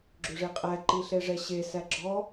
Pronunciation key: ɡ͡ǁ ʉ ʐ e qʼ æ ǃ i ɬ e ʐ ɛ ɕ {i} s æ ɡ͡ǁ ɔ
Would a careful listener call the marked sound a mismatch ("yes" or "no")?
yes